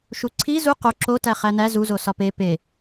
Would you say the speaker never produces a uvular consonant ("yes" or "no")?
no